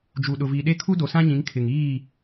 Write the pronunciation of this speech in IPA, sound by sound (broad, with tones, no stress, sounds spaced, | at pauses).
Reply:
d͡ʒ u˨ ɗ ʊ˨ v i˨ ɗ e˦ kʰ u˦ d o˨ s ã˦ ɲ ĩ˨˦ ŋ kʰ ɪ˨ ŋ iː˦˨